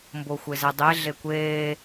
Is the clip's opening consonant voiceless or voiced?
voiced